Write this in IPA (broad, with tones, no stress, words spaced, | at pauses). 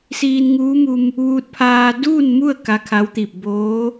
siː˧nŋuː˧˥mu˧m | ʋuː˧t̚pʰaː˧ duː˥˨nmu˥˨ə̯ ka˧˥kʰa˧˥wt̪i˧˩p̚ boː˧˥